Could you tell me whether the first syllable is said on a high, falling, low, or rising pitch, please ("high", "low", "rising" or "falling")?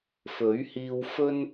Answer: rising